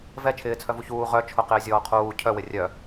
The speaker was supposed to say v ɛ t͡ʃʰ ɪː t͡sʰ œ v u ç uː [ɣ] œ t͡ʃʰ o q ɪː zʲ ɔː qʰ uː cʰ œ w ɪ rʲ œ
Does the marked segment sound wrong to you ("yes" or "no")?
yes